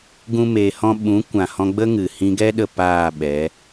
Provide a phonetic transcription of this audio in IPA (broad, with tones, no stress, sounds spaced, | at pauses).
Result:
ɡ ũ˦ m e˧ h ɔ̃˦ ɓ ũ˨˦ kʷ ã˨ h ɔ̃˧ ɡ͡b ə˦ ŋ ɨ˨ h ĩ˧ ɡ ɛ˦ ɗ ə˧ p aː˦˨ ɓ ɛ˨˦